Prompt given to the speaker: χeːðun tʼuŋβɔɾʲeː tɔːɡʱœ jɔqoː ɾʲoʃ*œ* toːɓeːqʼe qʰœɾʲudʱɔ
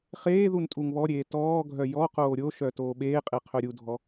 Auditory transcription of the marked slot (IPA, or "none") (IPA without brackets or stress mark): œ